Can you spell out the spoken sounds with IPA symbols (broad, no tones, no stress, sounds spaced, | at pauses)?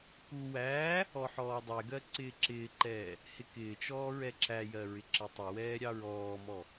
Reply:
k u w æː | ɔ ħ ɔː dˤ ɛ ɡ ɜ ǀ ɪː ǁ ɪː ǃ ɛː | h ɪ k ɪː t͡ʃ ɔː ɹ ɛ ǁ æ j ɜ ɹ ɪ ǁ ɪ tˤ ɪ w ɛː ɾʲ ɑ ɹ ɔː m ɔ